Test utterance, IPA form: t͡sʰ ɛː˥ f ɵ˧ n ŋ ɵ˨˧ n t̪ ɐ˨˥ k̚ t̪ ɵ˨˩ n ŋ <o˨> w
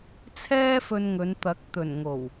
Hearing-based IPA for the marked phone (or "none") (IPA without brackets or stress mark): o˨˩